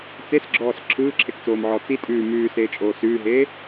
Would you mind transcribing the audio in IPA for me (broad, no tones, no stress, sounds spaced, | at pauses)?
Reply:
t͡s e s ɡ͡ǁ ɔː s ǁʰ ɯː ǁʰ e k t͡s oː m ʕ ɔː t͡s i tʼ ʉː m ʉː s eː t͡ʃʼ oː s ʉː ɦ eː